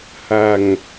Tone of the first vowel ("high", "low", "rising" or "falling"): low